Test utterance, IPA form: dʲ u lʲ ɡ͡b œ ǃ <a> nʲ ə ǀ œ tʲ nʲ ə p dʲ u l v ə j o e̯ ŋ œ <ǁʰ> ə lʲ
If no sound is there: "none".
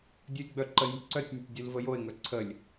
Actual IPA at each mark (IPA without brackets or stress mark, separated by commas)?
ə, ǀʰ